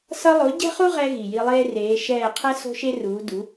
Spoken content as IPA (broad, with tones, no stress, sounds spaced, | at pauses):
s ʌ˧ lˠ o˩˥ ɟ ɛ̤˥ χ u˥ ʁ ɛ˧ ɣ i˩ j i˧ lˠ eː˥ r eː˩˥ ʃ ɛː˥˩ qʰ ɛ˥ s o̤˥ ʃ e˥ r uː˩˥ d u˩˥